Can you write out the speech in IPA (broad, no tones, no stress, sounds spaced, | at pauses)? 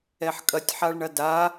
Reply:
ɛ ħ kʼ ɐ tʲ ħ a ɭ ɳ ɐ d a